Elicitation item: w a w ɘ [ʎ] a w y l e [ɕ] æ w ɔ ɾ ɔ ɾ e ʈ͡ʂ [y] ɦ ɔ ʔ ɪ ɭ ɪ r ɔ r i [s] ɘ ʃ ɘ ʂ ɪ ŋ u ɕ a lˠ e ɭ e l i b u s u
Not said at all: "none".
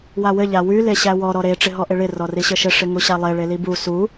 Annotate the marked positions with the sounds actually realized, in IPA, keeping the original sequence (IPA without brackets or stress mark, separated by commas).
ʎ, ɕ, ɪ, ɕ